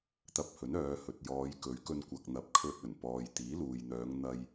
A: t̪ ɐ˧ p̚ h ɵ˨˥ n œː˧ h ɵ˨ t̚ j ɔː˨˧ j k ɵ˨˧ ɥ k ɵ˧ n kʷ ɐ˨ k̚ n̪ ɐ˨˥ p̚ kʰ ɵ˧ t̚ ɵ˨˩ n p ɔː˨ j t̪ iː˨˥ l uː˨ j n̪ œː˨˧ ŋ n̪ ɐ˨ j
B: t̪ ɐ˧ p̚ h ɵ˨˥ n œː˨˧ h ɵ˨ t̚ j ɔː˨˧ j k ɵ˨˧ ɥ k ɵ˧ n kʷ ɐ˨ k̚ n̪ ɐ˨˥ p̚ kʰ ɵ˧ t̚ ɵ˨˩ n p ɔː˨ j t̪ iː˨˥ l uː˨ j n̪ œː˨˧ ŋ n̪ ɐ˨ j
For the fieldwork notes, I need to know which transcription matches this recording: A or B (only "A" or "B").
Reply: B